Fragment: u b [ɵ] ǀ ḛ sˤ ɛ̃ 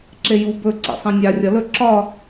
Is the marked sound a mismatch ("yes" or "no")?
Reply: no